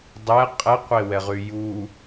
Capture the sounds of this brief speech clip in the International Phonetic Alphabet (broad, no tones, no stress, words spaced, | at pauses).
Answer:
dˤɛ qʼɛqʷewɛʁy ju